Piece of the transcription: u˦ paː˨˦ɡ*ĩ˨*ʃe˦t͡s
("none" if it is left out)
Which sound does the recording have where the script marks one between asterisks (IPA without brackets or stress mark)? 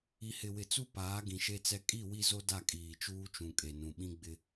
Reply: ĩ˨